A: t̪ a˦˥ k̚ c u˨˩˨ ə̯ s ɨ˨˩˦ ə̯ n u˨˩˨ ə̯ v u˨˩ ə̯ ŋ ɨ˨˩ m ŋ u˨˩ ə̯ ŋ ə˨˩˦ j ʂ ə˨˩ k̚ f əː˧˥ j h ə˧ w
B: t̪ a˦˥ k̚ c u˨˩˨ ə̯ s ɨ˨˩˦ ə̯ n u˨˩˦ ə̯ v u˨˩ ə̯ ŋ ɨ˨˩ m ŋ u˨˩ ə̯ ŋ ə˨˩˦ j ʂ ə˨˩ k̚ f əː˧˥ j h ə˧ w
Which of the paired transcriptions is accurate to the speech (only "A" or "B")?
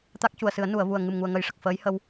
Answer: A